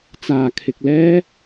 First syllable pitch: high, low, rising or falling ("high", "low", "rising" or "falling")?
low